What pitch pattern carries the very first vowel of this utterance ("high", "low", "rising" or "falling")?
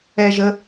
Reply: low